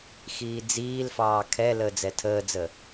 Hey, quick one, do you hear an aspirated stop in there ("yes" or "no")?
yes